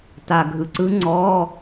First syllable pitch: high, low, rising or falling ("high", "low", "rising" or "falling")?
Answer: low